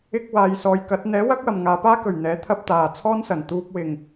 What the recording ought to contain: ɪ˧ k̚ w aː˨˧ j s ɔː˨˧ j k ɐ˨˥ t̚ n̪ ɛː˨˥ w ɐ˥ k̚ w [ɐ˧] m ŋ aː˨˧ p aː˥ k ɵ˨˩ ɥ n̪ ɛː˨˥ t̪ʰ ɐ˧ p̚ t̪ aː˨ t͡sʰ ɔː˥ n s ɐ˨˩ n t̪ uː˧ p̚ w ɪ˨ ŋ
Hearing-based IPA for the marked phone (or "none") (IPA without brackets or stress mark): ɐ˨